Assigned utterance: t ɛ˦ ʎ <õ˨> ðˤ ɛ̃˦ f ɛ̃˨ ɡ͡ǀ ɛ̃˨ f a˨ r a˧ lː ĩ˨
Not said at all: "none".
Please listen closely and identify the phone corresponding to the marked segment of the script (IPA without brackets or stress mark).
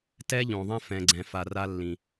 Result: õ˨